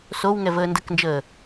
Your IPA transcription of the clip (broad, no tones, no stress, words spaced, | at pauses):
sowŋɛvəː ndəknd͡ʒəː